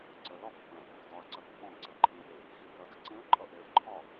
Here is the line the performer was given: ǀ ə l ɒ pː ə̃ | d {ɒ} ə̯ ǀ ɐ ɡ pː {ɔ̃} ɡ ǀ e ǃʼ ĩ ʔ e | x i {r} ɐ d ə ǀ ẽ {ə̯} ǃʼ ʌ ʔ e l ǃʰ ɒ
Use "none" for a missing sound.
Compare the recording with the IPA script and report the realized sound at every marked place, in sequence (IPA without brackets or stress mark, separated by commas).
ɒ, ɔ̃, r, ə̯